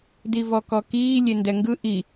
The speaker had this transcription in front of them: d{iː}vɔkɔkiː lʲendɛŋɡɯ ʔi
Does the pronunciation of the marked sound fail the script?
yes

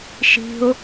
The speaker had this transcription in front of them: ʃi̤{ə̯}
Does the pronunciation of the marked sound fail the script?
yes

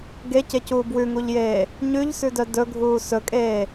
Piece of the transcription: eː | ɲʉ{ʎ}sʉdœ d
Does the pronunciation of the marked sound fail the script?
no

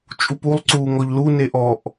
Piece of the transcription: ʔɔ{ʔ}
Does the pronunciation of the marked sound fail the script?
no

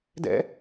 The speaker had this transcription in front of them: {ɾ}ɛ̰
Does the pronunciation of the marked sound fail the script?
yes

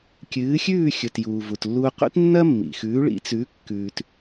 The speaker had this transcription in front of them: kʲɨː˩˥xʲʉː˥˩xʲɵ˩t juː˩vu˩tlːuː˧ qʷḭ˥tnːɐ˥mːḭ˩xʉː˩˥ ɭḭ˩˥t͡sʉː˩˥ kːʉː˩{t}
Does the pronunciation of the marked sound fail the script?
no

